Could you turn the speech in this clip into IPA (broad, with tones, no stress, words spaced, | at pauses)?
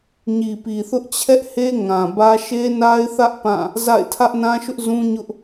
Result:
ɲi˨pi˨θʊ˦ʔ t͡ɕʰɛ˦ʔhe˦ ŋã˨bä˦ ʃe˦na˦ɪ̯θä˦ʔ pã˦˨ | za̰˦˨ɪ̯ tʰä˦ʔnã˦ʃʊ˦ʔ zũ˦ɲʊ˦ʔ